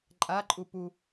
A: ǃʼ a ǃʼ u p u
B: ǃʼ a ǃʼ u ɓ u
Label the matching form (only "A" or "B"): A